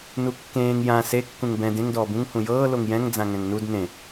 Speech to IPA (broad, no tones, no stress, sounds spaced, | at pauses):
n u kː ẽː ŋ j ã s e kː ũ ŋ b ɛ̃ d ẽ ŋ d ɔː b ũ ŋ h ũ j ɤː l o ŋ j ɛ̃ ŋ d͡z ã ŋ ɛ̃ ŋ n u d n ẽ